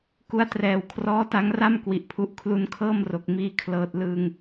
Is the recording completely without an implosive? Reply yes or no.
yes